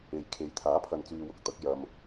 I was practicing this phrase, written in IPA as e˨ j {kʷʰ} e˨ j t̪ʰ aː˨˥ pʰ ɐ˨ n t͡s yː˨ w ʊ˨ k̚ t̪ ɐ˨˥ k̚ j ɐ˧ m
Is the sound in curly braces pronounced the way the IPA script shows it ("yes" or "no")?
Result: no